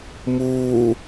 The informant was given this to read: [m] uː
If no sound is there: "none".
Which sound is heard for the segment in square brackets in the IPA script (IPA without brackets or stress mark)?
m